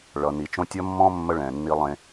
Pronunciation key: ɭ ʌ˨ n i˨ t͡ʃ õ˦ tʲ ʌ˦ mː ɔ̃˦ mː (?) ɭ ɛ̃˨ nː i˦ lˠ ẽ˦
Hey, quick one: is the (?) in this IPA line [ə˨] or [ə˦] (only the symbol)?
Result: ə˦